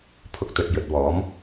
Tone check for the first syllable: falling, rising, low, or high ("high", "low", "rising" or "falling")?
high